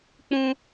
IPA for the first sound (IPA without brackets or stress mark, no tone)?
k͡p